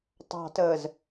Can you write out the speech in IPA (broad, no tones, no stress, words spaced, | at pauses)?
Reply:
tˤɑ̤təːz